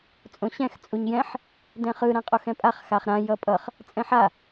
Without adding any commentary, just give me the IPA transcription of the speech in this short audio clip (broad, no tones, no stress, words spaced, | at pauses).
t͡sʼõɕɛ̃x t͡sʼuɲjɛ̃ħ | dɛ̃χɯ ɾãqʼoxɛ̃pʼaχ xaχɾã jʌpʼʌχ | t͡sʼɛ̃ħa